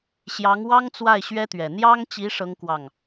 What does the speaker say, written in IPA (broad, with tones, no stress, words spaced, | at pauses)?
ɕjɑ˧˥ŋwɑ˥ŋt͡swa˥˩ɪ̯ ɕɥɛ˥t̪ɥɛ˨˩ n̪jɑ˥ŋt͡ɕi˧˥ ʂɤ˥ŋkwɑ˥˩ŋ